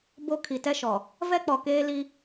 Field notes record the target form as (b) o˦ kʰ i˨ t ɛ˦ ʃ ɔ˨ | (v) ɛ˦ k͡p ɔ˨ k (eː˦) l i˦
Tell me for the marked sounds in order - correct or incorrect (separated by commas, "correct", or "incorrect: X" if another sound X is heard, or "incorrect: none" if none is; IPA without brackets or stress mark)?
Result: correct, correct, correct